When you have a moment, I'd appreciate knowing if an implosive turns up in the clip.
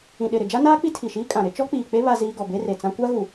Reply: yes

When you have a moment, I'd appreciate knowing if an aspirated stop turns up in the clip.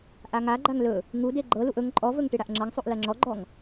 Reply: no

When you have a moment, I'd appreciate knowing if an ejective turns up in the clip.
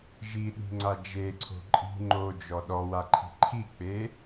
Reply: yes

